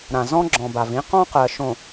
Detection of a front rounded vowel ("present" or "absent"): absent